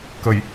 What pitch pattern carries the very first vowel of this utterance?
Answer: low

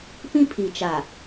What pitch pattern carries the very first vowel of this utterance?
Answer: high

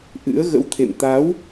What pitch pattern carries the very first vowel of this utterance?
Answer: rising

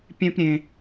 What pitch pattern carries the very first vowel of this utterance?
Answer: high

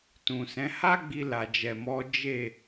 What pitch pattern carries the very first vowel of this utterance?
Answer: low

